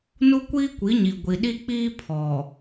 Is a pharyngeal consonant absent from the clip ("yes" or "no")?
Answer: yes